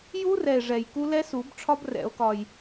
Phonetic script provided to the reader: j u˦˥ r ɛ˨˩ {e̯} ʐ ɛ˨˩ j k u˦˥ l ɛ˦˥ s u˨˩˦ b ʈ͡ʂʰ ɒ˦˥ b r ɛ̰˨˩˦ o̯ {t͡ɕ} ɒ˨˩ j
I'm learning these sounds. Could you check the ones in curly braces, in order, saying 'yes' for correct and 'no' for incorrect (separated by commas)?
yes, no